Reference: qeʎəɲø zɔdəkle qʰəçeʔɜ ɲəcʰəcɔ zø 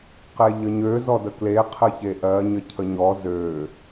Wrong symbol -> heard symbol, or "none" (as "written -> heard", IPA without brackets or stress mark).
c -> ɲ